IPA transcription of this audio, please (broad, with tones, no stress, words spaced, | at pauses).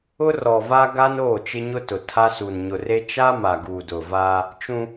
ʊ˦rɔ˨ va˦ɡa˦n oː˦˨t͡ʃɪ˦ɲʊ˦tʊ˨ tʰa˦su˨n ɲʊ˨re˦ t͡ʃa˦ ma˨ɡuː˨dʊ˨vaː˦ | t͡ʃũ˦